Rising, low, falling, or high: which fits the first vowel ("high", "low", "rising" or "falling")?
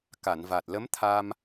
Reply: low